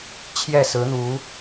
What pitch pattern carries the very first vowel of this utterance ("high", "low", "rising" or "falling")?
falling